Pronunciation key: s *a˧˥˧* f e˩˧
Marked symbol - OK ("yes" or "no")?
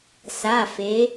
no